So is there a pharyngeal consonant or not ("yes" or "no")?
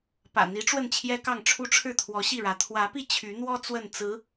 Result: no